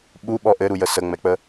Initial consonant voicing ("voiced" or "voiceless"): voiced